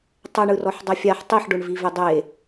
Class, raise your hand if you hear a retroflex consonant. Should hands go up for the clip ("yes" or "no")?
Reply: yes